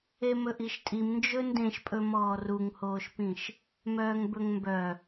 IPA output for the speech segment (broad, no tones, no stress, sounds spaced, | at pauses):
e m ɵ ʔ i ʃ tʼ i m n d͡ʒ ɵ n d ẽ ʃ pʼ ɵ m ɔː r u ŋ h oː ʃ p ĩ ʃ | m œː ŋ b ɵ ŋ m b œ